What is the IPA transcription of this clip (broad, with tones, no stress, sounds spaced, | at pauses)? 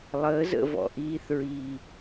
lˠ əː˨˦ z ə̰˦˨ v ɔ̰˨ ʔ iː˧ θ ɹ iː˨